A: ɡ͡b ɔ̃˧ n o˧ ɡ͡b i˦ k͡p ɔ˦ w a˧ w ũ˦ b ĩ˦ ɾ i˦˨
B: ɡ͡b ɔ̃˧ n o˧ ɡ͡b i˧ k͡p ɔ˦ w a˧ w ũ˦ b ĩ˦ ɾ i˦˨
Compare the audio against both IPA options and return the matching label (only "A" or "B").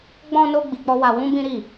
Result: B